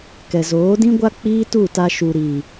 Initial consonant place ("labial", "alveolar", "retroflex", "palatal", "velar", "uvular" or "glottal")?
velar